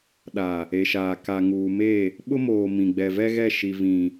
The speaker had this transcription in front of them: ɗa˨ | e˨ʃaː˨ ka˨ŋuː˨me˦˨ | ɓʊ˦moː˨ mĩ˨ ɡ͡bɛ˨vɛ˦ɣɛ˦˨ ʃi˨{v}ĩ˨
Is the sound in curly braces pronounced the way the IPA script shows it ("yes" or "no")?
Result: yes